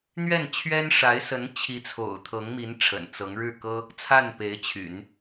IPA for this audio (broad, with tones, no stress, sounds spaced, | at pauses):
n̪ ɥ ɛ˥˩ n t͡ɕʰ ɥ ɛ˥ n ʂ a˧˥ ɪ̯ s ə˧˥ n t͡ɕʰ i˧˥ t͡sʰ o̰˨˩ ʊ̯ t̪ʰ ɤ˧˥ ŋ m i˧˥ n ʈ͡ʂʰ ə̰˨˩ n t͡s ɤ˧˥ ŋ ɻ ɻ̩˥˩ k ɤ˥ | t͡sʰ a˥˩ n p e˧˥ ɪ̯ t͡ɕʰ y̰˨˩˦ n